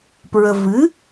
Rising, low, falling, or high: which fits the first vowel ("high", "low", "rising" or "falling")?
low